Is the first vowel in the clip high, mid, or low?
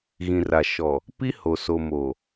high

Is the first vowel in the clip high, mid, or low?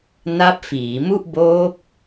low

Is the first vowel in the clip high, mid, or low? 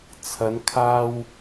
low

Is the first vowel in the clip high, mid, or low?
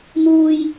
high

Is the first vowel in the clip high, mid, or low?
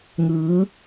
high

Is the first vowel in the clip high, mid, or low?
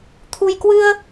high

